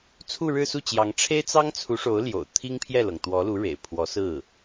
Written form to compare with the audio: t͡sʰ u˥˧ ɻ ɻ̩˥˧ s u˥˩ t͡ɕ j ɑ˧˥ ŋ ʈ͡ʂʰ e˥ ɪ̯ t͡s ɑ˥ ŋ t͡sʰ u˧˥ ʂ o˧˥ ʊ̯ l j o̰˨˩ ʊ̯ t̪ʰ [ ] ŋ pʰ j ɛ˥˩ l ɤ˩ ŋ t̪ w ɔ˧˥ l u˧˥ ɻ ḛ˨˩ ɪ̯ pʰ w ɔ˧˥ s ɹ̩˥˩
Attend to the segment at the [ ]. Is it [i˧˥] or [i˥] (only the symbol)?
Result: i˥